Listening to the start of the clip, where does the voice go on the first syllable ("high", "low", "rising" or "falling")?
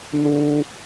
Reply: high